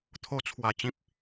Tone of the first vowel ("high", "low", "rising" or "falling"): low